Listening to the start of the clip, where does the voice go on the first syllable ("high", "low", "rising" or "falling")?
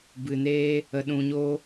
low